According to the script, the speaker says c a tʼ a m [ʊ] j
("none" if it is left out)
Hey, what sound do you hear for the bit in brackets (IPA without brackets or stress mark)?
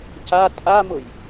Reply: ʊ